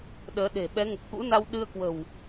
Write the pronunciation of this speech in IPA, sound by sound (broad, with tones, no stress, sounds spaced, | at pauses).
ɗ əː˨˦ ɗ e̤˨˩ ɓ ɛ˨˦ ŋ ə˨˩ p̚ k ṵ˧˥ n a˧ w ɗ ɨ˧ ə̯ k w ə̤˨˩ w